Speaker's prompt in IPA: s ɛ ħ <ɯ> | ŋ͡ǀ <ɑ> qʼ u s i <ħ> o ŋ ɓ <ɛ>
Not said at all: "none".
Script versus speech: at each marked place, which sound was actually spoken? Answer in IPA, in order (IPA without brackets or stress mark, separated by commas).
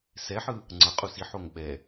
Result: ɯ, ʌ, ħ, ɛ